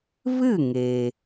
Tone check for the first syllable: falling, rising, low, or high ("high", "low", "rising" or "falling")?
falling